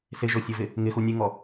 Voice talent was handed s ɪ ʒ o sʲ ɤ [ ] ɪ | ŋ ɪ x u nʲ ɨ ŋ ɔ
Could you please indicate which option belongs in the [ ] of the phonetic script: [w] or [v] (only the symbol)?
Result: v